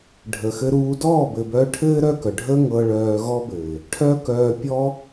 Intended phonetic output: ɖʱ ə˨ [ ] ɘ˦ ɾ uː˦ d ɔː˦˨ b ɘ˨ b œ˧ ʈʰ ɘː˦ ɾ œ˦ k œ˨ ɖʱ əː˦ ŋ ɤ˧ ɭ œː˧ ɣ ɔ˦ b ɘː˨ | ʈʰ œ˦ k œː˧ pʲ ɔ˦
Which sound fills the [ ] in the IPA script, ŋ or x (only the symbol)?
x